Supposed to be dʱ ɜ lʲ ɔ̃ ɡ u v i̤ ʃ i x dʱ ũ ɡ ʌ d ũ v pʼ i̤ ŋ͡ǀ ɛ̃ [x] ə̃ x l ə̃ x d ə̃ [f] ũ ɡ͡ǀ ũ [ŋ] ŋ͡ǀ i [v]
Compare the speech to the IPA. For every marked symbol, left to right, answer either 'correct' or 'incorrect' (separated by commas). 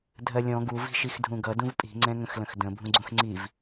incorrect, incorrect, incorrect, correct